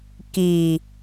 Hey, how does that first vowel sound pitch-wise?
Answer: low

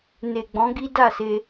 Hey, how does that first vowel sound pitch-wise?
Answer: low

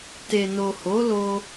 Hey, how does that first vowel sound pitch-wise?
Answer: low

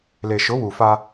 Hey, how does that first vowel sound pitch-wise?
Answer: low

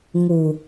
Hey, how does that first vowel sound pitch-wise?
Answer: low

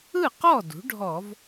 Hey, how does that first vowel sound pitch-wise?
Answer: falling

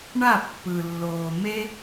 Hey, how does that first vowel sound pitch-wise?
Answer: falling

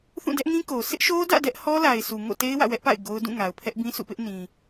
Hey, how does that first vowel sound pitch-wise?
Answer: falling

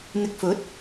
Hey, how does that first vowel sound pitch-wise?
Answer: low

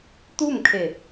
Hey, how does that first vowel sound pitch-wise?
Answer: falling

